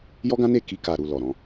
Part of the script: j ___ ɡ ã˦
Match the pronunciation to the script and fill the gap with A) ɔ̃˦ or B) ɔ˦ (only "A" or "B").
B